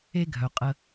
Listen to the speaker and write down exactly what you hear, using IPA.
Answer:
e˦ ɡʱ œ˨ qʼ ə˦

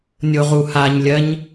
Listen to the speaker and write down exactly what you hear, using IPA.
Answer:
nʲ o ʁ u h a ɲ lʲ ɜ ɲ

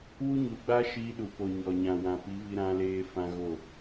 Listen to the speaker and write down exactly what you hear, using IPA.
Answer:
w u˦ ɲ u˨˦ ɡ͡b a˦ ʃ iː˧ ɗ u˨ p o˨ ɲ ɔ˨ ɲ ã˨ w ã˨ p i˨˦ v i˧ ɾ ã˧ l eː˧ f ã˧ ɣ o˦˨

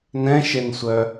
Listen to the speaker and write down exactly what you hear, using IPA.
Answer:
n ɛ̃ ʃ e n sʷ œ

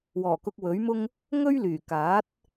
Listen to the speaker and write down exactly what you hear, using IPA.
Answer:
w ɔː˨˩ k ʊ˧ k̚ w ɵ˨˥ ɥ m ʊ˥ ŋ | ŋ ɵ˥ ɥ l yː˨˩ k aː˨˥ t̚

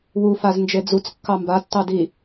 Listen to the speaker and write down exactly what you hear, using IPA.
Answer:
w u f a z n d͡ʒ e d͡z u t͡s kː ɑ m b a tː ɑ d i

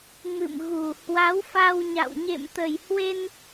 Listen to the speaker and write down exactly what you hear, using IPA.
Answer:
m ɨ̰˧˨ m ɣ u˨˩ h w a˨˦ w f a˧ w ɲ a̰˧˨ w ɲ ḛ˧˨ m t̪ ə˨˩ j h w e˧ n

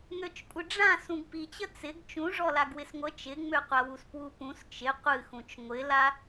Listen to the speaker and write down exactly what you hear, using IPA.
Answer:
ŋ ø t͡ʃ kʷʼ ɨ ɖ͡ʐ ã s ũ ɡ p i t͡ɕ ə t͡s ɪ ɡ t͡ʃ ũ ʐ ɔ l a ɡ w ɪ s ŋʷ ə t͡ʃ ɪ ŋ͡m ø qʷ a w u s p w u p ũ s t͡ʃ ɪ qʷ ɨ x ũ t͡ʃ ŋʷ ɪ l a

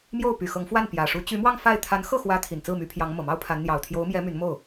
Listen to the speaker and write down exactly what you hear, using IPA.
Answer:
m j o˥˩ ʊ̯ p y˨˩ x ɤ˧˥ ŋ f w a˥˩ n p j ä˨˩ ʂ u˧˥ t͡ɕ y˧˥ m w ɑ˥˧ ŋ f a˥˩ ɪ̯ t̪ʰ a˧˥ n x ɤ˥˩ x w ä˧˥ t̪ʰ i˨˩ n t͡s ɹ̩˥˩ m y˧˥ pʰ j ɑ˧˥ ŋ m ɤ˨˩ m ɑ˥ ʊ̯ pʰ a˧˥ n n̪ j ɑ˨˩ ʊ̯ t̪ʰ j o˧˥ ʊ̯ m j ɛ˧˥ m y˧˥ n m o˥˩ ʊ̯

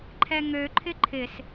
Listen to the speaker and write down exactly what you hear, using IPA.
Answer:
ǃʰ ɛ ŋ ø ǃʰ ɪ ǃʰ ɪ s

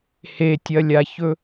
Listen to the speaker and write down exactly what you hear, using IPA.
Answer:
h e tʲ ɐ lʲ a ç ɵ

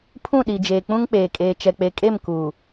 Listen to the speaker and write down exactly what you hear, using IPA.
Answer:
pʰ ũ˦˨ ɗ i˨ d͡ʒ eː˨ k͡p ũ˦ ŋ k͡p eː˨ kʼ eː˨ t͡ʃ ɛ˨ k͡p e˨ kʼ e˦˨ m k uː˨

